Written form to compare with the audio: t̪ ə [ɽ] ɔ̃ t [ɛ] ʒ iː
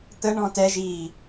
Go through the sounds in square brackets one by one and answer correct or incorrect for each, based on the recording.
incorrect: ɳ, correct

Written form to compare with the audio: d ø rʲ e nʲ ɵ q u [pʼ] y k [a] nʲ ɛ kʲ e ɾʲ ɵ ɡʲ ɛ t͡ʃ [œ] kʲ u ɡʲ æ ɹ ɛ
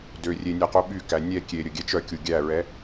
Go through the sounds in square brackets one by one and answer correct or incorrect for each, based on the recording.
incorrect: ɓ, incorrect: æ, correct

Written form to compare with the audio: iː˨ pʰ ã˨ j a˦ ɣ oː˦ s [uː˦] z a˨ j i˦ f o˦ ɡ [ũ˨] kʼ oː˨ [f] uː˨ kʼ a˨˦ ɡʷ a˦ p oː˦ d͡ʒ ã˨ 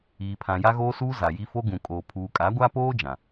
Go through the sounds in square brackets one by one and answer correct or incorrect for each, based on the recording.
correct, correct, incorrect: pʰ

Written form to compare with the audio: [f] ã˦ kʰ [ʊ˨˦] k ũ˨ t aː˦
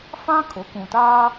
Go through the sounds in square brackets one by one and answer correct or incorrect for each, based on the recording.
correct, correct

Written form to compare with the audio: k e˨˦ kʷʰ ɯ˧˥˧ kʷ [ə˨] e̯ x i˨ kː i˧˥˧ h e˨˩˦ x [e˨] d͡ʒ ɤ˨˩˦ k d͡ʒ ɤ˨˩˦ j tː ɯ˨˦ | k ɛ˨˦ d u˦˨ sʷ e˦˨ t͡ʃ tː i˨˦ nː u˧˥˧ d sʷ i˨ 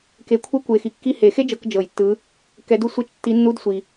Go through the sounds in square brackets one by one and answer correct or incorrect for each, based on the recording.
incorrect: ɯ˨, incorrect: e˥

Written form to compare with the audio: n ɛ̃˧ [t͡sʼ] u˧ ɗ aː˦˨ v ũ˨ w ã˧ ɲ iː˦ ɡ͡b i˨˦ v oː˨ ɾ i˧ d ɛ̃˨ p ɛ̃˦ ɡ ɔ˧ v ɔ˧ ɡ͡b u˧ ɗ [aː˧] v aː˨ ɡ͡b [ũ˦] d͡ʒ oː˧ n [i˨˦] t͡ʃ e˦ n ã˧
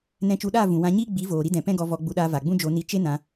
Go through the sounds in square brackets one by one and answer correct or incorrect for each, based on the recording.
incorrect: t͡ʃ, correct, correct, incorrect: i˧

